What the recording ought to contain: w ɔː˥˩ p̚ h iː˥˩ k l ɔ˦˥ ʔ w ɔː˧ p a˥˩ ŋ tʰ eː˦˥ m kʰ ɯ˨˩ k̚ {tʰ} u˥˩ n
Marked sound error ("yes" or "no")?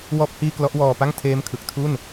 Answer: no